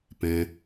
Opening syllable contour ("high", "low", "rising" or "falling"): low